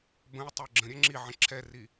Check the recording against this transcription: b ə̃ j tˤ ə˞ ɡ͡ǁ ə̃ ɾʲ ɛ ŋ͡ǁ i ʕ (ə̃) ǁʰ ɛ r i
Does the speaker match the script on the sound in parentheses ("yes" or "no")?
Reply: yes